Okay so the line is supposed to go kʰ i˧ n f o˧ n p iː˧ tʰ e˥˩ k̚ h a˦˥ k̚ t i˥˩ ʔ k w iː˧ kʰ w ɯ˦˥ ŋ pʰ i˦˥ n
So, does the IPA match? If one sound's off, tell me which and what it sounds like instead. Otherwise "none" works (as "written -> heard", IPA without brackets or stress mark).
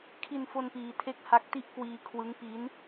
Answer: pʰ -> p